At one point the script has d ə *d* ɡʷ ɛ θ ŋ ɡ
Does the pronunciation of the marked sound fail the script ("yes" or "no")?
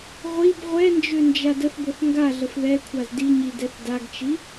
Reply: yes